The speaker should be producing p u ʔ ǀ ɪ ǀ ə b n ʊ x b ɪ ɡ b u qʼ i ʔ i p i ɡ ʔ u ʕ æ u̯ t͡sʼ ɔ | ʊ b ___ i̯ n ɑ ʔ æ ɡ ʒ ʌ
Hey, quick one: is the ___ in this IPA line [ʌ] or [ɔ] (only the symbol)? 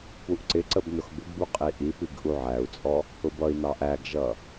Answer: ʌ